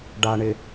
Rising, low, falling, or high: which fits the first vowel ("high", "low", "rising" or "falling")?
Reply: low